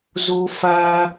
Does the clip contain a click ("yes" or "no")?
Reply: no